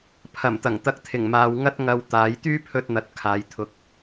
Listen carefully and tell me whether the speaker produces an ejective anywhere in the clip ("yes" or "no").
no